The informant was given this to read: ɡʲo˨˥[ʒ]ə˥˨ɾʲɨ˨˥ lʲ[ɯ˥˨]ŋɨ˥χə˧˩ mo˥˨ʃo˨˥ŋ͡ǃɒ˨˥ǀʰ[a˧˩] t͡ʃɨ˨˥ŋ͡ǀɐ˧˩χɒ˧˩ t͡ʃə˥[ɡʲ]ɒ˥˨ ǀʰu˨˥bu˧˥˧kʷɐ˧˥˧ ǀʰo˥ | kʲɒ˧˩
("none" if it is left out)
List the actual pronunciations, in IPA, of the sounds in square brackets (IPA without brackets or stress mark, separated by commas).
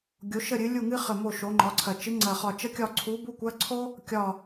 ʃ, u˥˨, ɐ˧˩, kʲ